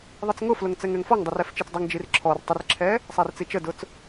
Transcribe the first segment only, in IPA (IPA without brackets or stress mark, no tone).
ðˤ